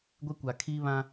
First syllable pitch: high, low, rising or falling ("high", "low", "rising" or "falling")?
high